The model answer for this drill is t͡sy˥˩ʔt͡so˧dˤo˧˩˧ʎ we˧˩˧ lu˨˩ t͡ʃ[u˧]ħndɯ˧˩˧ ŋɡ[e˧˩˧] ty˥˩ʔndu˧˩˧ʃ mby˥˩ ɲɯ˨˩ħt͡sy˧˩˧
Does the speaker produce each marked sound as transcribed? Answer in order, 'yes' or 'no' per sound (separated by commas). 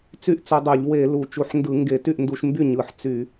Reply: no, yes